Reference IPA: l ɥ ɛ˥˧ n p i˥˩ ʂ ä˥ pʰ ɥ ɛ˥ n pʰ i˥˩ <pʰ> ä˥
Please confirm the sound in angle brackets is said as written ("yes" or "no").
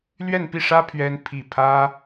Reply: yes